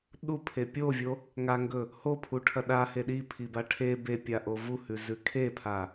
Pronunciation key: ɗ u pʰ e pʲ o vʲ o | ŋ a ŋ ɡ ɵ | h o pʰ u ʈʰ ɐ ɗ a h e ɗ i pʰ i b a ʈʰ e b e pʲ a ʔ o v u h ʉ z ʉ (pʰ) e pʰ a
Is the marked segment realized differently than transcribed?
yes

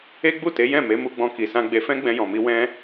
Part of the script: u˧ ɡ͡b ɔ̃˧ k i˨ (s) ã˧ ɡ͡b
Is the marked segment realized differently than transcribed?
no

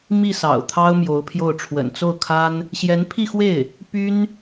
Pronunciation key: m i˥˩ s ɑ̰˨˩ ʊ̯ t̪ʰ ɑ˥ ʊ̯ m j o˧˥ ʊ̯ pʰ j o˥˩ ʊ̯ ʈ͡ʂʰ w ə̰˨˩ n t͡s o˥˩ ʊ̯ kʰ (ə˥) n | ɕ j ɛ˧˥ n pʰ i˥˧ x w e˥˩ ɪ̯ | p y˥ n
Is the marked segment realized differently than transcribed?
yes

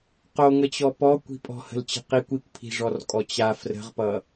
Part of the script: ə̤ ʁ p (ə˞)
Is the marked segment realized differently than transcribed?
yes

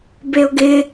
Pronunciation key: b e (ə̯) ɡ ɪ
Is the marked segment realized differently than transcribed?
yes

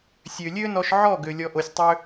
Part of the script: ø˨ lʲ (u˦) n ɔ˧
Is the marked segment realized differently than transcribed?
yes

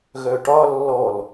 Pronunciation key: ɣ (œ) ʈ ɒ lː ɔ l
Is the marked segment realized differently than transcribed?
no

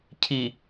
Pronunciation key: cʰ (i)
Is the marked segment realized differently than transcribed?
no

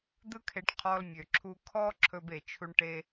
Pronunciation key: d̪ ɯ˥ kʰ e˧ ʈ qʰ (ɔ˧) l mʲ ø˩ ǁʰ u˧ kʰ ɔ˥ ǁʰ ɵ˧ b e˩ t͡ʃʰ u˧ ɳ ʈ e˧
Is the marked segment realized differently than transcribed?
no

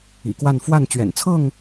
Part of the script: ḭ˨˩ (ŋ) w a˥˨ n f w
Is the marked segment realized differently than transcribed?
yes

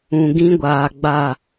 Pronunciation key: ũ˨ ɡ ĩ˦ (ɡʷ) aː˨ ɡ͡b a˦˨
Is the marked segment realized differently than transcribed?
no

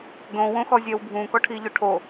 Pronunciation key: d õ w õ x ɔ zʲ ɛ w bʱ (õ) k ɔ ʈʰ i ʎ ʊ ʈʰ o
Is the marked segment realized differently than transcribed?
yes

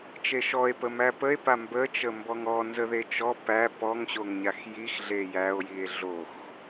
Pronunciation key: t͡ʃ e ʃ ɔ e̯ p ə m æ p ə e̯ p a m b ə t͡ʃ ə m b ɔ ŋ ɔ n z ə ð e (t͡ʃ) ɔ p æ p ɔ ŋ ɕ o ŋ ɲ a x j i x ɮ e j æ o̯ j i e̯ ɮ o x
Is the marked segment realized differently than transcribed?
no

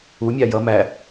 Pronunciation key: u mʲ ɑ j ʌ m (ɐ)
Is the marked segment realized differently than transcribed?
yes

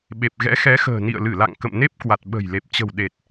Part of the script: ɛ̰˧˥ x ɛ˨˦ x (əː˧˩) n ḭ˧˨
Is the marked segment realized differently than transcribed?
yes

